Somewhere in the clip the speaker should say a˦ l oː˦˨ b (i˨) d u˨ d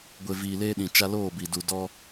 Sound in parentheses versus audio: correct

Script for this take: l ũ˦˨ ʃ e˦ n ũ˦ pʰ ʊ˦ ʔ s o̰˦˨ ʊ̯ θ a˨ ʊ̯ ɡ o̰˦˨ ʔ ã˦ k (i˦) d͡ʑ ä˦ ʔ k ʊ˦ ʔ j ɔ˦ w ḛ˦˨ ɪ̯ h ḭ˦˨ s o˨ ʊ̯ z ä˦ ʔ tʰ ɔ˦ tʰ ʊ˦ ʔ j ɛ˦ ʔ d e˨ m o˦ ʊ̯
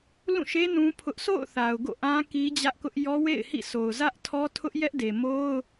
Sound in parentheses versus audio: correct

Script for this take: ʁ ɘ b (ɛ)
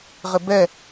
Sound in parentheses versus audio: correct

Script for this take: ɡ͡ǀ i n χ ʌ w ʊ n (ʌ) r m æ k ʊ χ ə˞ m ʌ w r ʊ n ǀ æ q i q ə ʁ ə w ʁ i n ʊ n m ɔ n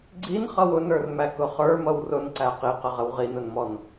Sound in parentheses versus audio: incorrect: ə˞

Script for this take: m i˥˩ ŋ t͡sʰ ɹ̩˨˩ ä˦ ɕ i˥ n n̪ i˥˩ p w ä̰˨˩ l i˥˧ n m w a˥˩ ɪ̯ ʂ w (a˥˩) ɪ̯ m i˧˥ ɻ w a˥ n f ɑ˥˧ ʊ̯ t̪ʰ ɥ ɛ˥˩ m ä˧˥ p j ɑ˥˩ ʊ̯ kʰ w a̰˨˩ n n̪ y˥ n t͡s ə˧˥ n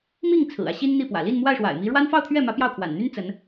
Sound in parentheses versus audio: incorrect: a̰˨˩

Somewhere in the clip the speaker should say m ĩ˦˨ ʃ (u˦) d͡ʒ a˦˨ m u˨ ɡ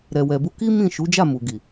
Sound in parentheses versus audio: incorrect: u˨˦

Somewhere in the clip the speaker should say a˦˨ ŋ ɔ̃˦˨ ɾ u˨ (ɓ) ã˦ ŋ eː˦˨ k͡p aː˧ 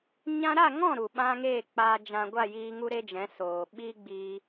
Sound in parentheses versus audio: correct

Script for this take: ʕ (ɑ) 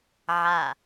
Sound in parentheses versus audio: incorrect: a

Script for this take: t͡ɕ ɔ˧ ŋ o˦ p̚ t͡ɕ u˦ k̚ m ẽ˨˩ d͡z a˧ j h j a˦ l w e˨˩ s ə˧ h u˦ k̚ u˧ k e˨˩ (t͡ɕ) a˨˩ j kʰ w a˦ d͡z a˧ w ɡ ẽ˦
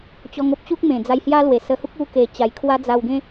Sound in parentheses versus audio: correct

